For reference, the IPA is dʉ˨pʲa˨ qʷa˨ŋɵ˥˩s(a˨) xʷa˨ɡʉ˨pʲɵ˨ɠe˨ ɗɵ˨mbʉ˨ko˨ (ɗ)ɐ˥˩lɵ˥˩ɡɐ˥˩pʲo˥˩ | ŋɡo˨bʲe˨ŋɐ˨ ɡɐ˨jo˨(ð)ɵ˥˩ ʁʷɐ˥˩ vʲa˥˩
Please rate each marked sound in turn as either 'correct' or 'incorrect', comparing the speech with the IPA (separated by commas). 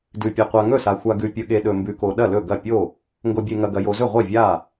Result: correct, correct, incorrect